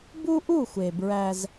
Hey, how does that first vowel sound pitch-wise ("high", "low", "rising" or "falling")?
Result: high